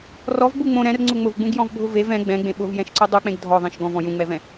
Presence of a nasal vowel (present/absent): present